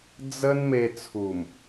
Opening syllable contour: high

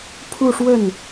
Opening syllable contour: falling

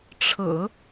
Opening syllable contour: low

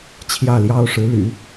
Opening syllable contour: falling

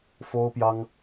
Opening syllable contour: high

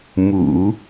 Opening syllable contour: low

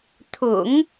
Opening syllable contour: low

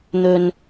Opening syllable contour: low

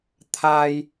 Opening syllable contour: high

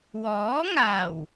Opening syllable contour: rising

